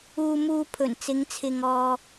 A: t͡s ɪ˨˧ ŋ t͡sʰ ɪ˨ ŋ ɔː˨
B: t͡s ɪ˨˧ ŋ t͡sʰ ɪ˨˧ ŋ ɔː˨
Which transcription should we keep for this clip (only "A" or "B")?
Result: A